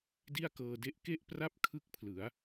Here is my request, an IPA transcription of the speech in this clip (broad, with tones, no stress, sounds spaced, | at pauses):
d i˥˩ a̯ k ɤː˧ d e˥˩ ʔ k e˥˩ ʔ p r a˥˩ p̚ kʰ ɯ˦˥ k̚ pʰ l ɯ˩˦ a̯